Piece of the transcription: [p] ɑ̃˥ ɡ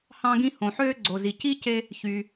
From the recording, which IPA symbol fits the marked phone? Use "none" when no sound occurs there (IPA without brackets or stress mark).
h